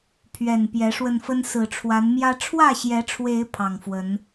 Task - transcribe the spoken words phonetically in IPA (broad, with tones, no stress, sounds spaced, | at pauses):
pʰ ɥ ɛ˨˩ n p j ɛ˨˦ ʂ w ə˧ n f ə˦ n s ɹ̩˨˩ ʈ͡ʂʰ w a˨˦ n m j ä˦ ʈ͡ʂʰ w ä˥˨ ɕ j ɛ˨˦ ʈ͡ʂʰ w e˨˦ ɪ̯ pʰ ɑ˨˩ ŋ f w ə˨˦ n